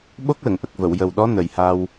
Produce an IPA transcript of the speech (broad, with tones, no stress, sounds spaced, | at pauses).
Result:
ɓ o˦˥ k̚ l ə˨˩˨ ŋ ʔ ə˨˩ k̚ v ə˨˩˨ w j ə˨˩ w ɗ ɔ˧˥ n ə˨˩ j h a˧ w